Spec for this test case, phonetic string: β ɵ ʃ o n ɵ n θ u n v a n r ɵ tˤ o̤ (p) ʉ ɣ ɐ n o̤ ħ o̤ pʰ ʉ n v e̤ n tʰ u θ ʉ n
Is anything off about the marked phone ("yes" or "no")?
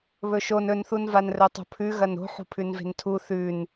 yes